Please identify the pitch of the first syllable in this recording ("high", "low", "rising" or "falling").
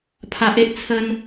high